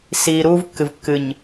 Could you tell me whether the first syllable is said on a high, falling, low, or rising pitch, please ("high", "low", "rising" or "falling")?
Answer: low